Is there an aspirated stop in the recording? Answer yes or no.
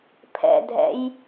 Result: yes